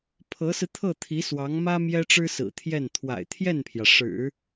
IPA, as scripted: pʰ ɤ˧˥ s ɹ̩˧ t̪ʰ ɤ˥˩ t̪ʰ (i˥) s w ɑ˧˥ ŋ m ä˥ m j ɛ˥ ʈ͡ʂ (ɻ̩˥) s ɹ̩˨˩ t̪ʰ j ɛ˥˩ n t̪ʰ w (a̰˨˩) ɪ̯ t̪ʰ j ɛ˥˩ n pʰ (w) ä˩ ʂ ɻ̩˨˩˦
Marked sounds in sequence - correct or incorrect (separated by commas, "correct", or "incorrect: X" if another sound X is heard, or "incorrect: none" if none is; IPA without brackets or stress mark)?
incorrect: i˧˥, correct, correct, incorrect: j